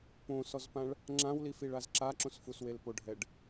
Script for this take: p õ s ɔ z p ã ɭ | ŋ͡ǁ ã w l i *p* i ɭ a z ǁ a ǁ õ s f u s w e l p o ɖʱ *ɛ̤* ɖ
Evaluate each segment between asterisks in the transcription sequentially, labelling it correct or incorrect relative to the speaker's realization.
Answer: incorrect: f, incorrect: ɛ

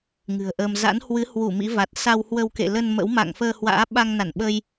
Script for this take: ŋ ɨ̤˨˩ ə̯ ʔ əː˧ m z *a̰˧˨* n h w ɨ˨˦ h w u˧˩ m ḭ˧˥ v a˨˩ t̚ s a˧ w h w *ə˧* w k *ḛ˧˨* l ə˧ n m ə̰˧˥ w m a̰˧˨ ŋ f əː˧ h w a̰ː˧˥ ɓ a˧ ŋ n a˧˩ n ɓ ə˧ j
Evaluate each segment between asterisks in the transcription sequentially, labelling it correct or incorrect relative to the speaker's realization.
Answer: incorrect: a̰˧˥, correct, correct

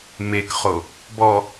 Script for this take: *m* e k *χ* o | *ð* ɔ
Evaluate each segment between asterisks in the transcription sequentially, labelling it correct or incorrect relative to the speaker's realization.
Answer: correct, correct, incorrect: b

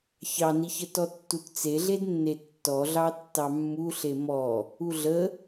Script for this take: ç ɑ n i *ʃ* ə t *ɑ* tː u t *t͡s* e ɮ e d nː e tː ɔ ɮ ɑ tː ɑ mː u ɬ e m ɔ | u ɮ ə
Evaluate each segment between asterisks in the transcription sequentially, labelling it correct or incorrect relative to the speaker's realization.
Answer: incorrect: ç, incorrect: ɔ, correct

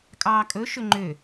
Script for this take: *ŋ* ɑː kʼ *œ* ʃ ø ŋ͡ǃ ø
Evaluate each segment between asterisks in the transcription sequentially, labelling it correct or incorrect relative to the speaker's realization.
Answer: incorrect: kʼ, incorrect: ɵ

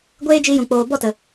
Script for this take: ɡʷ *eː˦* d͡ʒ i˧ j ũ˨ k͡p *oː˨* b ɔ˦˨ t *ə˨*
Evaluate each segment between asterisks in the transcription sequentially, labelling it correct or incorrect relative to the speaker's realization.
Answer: correct, correct, correct

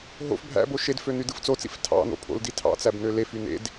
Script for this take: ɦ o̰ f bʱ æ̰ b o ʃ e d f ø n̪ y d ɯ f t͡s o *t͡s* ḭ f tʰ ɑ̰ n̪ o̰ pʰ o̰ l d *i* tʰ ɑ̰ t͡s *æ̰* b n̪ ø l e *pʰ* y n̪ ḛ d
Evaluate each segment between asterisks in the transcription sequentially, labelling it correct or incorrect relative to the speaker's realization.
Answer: correct, correct, incorrect: æ, incorrect: f

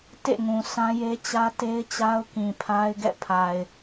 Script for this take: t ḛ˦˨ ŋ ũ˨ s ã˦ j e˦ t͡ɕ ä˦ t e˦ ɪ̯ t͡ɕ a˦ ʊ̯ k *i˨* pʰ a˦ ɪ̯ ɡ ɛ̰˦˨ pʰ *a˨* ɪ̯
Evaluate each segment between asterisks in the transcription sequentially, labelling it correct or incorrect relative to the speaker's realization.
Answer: incorrect: ĩ˨, correct

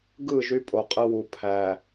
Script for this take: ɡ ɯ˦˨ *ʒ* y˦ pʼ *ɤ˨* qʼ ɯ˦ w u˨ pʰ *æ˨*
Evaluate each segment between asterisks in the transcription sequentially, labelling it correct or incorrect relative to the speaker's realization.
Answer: correct, incorrect: o˨, correct

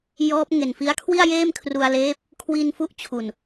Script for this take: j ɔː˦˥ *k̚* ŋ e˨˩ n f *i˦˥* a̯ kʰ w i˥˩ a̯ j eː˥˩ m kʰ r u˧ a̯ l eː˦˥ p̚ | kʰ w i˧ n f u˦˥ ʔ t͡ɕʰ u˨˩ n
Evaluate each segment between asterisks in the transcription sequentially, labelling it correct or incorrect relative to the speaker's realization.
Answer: incorrect: p̚, correct

